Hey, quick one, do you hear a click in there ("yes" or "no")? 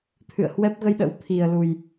no